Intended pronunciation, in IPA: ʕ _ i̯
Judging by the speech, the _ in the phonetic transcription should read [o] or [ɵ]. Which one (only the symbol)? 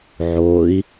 o